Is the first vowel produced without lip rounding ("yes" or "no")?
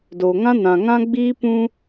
no